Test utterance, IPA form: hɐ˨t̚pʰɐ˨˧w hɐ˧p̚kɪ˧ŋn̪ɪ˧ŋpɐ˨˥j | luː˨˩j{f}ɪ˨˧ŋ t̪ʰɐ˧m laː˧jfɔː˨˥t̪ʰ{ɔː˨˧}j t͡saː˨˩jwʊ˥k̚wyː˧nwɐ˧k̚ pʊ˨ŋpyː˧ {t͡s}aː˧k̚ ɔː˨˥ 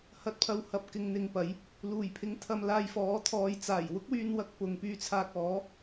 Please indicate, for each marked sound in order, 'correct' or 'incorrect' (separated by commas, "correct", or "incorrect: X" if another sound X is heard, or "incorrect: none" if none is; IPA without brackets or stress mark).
incorrect: pʰ, correct, incorrect: t͡sʰ